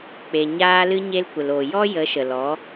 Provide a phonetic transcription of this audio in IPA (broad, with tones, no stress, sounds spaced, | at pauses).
k͡p e˨ ɲ aː˧ l ɨ˧ ɲ e˧ l kʷ ə˨ l o˨ j ɔ˦ j ə˨˦ ʃ ə˨ l ɔ˨˦